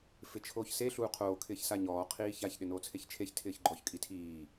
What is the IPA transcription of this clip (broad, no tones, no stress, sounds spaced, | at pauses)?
f ɪ t͡ʃʰ oː ç s e ɬ uː qʰ oː kʰ ɪː ç s a ɲ ɔː qʰ iː ç a ç ɗ ɪ n oː t͡sʰ e ç t͡ʃʰ e ç tʰ ɪː ç ɡ͡ǃ ɔ ç kʼ i tʰ iː